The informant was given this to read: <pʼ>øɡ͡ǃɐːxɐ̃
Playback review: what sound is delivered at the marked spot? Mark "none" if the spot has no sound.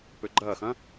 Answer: p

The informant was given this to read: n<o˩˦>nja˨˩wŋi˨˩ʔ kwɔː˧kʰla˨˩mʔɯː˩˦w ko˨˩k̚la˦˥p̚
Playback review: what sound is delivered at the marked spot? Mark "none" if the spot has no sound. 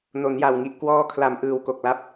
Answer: o˩˦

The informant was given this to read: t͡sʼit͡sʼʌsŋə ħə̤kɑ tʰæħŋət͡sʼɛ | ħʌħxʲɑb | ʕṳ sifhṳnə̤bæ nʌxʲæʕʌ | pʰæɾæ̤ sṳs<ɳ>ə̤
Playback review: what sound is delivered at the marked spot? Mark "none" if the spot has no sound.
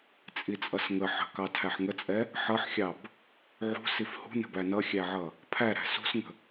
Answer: ŋ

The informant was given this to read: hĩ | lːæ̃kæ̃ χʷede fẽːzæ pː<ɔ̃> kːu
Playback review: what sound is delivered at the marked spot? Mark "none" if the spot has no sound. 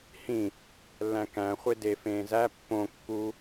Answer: õ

